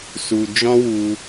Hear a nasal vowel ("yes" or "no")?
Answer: yes